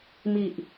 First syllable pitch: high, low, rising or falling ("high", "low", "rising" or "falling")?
low